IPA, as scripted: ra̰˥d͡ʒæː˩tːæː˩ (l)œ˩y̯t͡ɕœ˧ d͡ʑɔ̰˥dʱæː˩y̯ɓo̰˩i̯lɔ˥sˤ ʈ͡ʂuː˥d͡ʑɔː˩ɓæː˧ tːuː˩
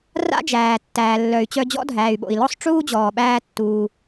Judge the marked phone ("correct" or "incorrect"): incorrect